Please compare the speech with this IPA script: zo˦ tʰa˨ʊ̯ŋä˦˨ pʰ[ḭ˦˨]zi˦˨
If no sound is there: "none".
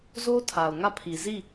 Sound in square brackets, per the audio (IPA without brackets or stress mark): i˨